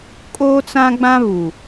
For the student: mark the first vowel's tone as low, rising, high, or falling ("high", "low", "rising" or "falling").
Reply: high